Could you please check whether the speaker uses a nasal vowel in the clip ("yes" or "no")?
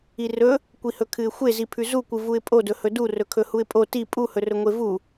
no